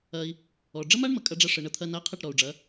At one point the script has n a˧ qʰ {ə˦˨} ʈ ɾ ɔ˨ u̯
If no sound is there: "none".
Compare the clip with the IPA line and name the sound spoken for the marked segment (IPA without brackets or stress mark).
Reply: ə˦˨